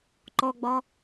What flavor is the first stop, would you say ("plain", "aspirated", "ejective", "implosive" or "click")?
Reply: click